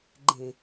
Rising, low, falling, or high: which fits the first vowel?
low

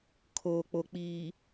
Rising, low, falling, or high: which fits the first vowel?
low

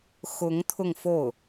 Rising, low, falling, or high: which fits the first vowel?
rising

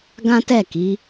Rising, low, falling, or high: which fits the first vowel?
high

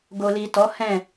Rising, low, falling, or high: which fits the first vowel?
low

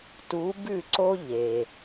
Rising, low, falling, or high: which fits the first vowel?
rising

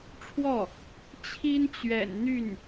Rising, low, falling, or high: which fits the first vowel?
falling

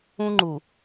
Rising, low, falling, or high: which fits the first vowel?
high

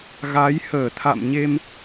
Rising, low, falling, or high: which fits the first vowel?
rising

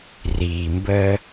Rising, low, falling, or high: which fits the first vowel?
low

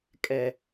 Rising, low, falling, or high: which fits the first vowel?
low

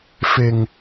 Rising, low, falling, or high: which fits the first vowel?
low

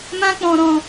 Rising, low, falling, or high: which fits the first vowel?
high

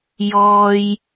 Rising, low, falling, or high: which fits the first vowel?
low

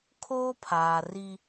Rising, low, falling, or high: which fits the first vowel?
high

